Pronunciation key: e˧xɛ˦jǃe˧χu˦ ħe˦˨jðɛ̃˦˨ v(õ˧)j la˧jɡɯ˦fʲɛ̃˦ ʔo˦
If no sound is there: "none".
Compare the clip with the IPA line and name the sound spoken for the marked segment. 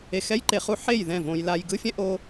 õ˧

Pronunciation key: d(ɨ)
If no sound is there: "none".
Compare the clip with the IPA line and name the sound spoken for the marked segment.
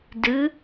ɨ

